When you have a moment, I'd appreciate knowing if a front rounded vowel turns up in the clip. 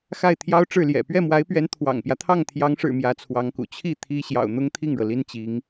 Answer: no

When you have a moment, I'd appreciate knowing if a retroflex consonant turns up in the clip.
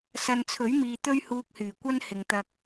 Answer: no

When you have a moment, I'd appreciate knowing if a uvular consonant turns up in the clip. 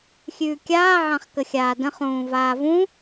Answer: yes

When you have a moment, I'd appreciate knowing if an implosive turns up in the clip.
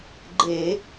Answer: no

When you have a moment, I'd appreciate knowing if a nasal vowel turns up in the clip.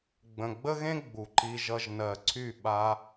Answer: yes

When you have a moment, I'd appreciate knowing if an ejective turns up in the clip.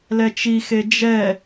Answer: no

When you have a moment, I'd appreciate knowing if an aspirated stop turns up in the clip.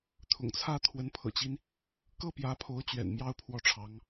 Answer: yes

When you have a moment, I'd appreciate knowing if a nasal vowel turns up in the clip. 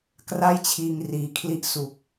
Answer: no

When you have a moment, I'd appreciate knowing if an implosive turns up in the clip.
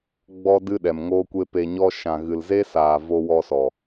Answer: yes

